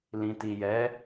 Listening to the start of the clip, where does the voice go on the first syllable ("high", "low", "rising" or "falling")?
low